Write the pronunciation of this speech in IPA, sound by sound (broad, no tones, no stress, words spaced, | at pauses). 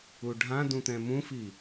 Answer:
uɖʱãdũ t̪ɛ̃mũfi